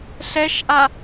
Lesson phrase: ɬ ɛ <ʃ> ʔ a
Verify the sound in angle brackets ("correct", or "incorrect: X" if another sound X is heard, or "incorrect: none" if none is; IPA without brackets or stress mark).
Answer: correct